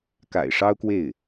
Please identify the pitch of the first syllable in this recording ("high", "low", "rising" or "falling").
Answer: low